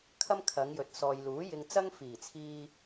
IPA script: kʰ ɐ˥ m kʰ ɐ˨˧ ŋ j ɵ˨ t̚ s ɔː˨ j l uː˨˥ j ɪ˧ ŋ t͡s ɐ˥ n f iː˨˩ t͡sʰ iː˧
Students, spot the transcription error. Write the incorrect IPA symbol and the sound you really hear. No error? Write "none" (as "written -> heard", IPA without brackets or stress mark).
n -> ŋ